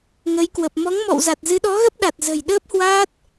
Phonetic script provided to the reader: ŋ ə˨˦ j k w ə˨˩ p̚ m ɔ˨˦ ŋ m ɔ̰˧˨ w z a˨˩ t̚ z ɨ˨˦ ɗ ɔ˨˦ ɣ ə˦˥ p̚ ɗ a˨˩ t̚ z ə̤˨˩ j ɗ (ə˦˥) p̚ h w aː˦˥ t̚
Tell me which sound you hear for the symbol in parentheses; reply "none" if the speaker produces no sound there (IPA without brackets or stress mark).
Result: əː˦˥